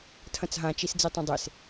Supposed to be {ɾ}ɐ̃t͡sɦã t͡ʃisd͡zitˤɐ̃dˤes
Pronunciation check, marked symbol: incorrect: tʰ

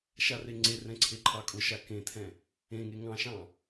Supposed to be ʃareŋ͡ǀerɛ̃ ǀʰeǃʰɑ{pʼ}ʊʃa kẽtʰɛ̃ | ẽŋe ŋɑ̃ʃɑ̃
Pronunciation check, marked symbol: incorrect: kʼ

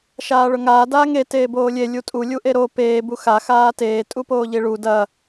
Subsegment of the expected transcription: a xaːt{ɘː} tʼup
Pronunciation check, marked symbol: incorrect: eː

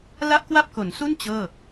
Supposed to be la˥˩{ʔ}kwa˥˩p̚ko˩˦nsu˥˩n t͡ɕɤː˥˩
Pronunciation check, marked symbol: correct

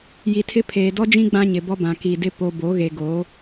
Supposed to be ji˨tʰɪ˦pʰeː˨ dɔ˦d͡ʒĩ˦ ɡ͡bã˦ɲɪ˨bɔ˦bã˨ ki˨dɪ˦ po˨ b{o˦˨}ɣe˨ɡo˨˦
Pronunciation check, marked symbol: incorrect: o˨˦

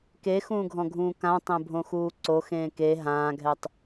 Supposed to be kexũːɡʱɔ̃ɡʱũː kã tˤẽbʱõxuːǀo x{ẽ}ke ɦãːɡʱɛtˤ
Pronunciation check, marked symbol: incorrect: ẽː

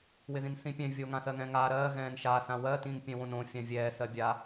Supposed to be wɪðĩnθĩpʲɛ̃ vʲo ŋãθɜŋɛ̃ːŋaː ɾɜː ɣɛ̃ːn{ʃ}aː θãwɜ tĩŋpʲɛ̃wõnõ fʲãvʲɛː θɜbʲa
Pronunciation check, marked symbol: correct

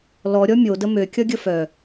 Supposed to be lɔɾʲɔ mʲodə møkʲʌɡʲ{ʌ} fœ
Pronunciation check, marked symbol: incorrect: ə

